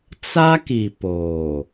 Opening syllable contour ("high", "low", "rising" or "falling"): high